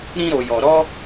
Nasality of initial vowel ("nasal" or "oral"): nasal